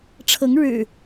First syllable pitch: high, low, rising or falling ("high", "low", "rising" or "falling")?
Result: rising